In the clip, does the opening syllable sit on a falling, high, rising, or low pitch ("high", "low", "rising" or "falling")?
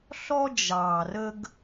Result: high